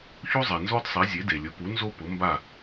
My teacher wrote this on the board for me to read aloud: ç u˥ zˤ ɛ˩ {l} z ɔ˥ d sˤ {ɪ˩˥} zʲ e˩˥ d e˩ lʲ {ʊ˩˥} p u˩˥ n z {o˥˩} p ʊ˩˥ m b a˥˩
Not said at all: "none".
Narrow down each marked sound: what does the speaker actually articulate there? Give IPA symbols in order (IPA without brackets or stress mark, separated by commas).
n, i˩˥, ʊ˩˥, o˥